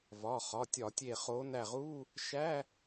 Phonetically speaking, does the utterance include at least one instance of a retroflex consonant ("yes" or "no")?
no